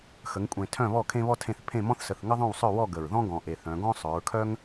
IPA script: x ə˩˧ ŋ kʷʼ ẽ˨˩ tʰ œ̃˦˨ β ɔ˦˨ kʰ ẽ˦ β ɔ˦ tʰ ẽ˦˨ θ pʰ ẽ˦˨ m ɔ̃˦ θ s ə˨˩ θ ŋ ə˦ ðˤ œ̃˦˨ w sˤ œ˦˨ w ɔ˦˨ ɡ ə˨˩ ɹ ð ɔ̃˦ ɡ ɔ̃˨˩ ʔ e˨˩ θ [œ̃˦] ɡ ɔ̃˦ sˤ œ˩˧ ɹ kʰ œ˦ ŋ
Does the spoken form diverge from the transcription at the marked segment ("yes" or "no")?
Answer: yes